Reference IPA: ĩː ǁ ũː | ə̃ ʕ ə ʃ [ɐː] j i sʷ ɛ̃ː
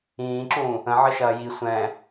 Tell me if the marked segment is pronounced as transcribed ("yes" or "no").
yes